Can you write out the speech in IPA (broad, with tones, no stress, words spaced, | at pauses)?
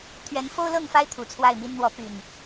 t̪ʰɥɛ˨˦nfo˦ʊ̯lɤ˥˨ŋfa˦ɪ̯ t̪ʰu˨˩t͡sʰwa˥˨ɪ̯mi˦n n̪wɔ˨˦ py˨˩n